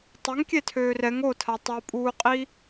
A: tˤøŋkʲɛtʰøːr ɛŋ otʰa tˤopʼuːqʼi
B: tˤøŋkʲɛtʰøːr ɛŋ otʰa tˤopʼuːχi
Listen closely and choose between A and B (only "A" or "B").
A